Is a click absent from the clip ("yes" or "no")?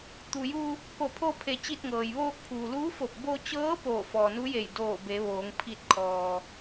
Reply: yes